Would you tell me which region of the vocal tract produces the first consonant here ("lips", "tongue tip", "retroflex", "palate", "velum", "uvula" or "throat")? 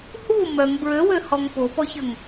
throat